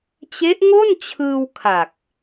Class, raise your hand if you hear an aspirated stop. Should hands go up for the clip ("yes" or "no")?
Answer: yes